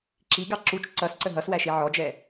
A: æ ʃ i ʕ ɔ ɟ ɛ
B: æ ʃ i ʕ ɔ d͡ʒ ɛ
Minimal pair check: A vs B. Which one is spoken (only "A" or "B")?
B